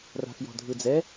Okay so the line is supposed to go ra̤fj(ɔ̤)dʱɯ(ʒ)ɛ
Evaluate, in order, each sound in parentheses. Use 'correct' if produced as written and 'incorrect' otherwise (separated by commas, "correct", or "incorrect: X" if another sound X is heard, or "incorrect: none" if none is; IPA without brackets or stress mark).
correct, incorrect: d͡z